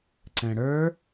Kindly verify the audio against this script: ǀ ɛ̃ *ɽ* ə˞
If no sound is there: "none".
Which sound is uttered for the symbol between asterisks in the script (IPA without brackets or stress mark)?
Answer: ɽ